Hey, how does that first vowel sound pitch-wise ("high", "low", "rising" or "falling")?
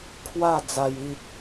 falling